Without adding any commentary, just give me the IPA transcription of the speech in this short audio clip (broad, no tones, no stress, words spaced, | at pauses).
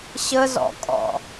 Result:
ɕə zɔ̰kʼɔ̰